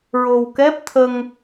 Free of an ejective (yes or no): yes